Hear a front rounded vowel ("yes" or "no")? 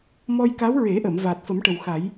no